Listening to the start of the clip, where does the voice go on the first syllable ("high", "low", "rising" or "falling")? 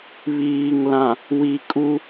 low